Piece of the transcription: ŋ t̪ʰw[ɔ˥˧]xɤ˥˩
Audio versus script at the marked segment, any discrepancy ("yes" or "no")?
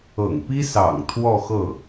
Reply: no